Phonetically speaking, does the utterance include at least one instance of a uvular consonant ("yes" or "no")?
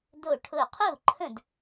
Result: yes